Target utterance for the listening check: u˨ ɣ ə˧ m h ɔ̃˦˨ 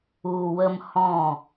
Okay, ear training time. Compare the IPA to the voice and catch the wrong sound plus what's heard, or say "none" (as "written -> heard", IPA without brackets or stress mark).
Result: ɣ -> w